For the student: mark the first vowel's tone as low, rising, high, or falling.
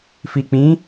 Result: low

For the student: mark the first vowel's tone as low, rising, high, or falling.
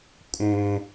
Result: high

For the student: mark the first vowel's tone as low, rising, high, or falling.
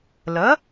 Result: rising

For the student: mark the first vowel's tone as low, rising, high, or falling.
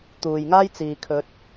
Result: low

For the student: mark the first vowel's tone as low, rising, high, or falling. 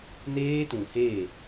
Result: high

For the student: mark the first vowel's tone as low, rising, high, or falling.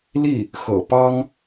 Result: falling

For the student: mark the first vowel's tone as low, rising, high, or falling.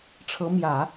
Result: rising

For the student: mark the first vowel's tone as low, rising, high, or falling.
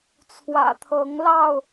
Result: low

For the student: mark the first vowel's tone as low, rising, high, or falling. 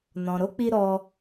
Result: low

